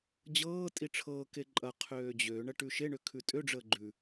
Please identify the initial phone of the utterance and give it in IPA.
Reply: d͡ʑ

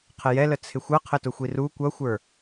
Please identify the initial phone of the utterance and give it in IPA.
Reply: qʰ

